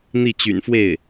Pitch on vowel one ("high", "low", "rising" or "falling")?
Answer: falling